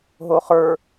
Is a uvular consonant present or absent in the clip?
present